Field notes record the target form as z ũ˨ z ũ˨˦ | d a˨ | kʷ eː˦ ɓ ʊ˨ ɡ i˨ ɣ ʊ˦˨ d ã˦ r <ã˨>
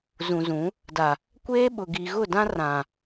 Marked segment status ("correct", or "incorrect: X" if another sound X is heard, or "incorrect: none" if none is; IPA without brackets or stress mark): correct